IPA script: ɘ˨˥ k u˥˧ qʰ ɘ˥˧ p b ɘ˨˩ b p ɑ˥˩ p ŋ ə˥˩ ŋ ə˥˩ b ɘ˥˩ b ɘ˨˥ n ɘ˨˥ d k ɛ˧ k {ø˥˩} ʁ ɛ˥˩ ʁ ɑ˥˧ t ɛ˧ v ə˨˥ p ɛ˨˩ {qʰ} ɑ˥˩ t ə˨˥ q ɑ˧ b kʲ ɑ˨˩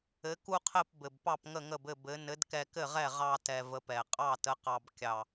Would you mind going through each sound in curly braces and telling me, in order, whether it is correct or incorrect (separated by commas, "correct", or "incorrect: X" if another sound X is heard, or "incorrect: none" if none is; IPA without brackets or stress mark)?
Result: incorrect: ɘ˥˩, incorrect: qʼ